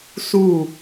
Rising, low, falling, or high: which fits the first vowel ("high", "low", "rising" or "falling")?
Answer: falling